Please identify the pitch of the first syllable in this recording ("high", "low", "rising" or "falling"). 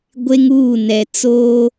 high